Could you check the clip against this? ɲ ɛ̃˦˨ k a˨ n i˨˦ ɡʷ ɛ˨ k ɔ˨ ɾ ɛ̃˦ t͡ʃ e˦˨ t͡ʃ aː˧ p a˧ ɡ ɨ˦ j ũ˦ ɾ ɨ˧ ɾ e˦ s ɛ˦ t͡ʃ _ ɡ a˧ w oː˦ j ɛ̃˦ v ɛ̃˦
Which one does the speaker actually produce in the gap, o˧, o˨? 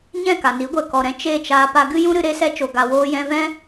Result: o˧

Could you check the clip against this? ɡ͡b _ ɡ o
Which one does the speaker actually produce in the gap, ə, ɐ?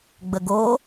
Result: ə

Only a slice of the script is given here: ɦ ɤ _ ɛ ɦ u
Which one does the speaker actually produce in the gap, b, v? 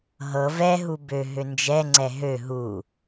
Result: v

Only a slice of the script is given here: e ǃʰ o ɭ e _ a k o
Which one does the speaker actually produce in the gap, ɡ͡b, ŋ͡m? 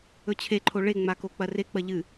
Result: ŋ͡m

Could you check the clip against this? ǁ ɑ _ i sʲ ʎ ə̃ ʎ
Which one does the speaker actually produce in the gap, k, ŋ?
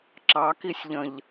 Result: k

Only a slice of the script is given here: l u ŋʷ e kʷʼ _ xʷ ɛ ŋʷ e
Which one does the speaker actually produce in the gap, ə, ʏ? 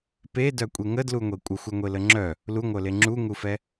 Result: ə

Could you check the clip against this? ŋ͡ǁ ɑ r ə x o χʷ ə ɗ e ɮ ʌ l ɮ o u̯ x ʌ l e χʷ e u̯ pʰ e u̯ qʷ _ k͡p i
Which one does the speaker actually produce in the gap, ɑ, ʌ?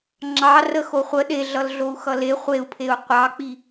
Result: ɑ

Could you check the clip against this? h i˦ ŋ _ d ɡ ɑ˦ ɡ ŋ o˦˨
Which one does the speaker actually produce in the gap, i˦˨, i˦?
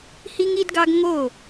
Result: i˦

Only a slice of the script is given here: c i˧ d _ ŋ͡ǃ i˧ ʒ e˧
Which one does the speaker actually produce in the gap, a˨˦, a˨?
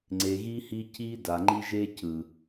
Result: a˨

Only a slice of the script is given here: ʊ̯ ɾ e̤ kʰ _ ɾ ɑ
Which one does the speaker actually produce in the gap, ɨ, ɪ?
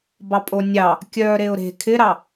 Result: ɪ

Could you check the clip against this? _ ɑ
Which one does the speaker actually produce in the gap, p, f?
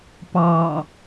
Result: p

